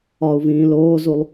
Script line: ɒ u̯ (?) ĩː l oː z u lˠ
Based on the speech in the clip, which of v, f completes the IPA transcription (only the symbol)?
v